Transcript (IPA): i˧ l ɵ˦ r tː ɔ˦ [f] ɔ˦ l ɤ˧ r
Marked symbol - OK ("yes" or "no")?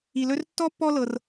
no